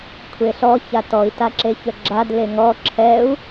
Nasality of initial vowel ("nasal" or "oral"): oral